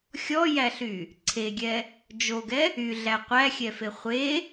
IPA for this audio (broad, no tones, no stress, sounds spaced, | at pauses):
xʲ ɔ j æ ɬ y | ǀʰ e ɡʲ ɛ | d͡ʒ o ɡ ɛ | y ɮ æ qʷ æ xʲ ɛ f e χʷ e